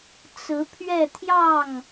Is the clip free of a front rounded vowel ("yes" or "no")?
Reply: yes